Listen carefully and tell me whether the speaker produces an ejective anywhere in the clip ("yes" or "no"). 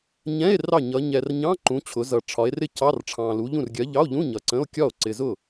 no